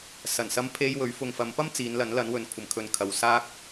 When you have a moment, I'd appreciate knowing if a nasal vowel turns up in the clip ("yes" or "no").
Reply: no